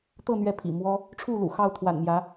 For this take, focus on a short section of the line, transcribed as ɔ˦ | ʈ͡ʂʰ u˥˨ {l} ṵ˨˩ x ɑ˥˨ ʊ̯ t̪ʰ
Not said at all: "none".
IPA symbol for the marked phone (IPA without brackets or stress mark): l